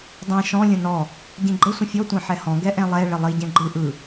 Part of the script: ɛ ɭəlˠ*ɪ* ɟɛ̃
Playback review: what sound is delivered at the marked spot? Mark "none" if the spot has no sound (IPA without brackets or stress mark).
i